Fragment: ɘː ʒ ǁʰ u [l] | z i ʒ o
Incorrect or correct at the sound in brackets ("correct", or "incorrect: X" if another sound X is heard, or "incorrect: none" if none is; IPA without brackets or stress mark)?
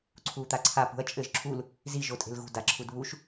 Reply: correct